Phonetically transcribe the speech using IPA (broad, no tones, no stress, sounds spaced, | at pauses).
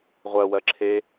ʁʷ ɜ w ɜ ǁʰ e